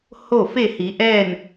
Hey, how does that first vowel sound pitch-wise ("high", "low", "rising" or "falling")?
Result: falling